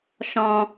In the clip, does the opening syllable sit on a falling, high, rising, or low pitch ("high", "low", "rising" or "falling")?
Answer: low